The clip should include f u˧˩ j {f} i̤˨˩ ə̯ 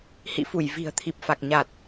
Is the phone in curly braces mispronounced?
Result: yes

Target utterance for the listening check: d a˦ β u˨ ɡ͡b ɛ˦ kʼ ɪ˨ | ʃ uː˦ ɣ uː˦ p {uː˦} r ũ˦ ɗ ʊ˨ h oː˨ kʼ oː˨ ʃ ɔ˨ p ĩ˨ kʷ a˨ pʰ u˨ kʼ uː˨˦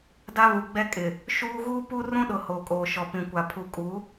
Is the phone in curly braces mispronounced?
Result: yes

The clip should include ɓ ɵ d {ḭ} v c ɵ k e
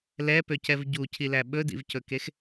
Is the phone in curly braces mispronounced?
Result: no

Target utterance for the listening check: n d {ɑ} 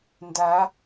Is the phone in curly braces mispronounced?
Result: yes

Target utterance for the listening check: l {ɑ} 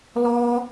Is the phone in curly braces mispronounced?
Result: yes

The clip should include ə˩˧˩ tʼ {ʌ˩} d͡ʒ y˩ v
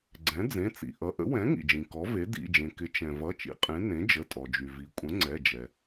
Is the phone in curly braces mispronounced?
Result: yes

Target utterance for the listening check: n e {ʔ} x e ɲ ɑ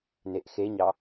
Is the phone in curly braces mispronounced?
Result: no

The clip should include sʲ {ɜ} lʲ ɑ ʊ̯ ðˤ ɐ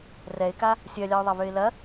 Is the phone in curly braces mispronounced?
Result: no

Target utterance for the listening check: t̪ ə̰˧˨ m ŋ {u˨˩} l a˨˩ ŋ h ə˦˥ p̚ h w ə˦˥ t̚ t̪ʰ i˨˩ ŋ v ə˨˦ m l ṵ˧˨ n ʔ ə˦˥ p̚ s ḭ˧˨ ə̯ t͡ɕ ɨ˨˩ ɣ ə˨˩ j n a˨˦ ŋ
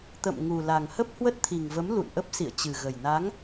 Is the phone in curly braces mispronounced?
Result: no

